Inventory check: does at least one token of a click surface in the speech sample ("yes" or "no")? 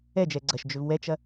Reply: yes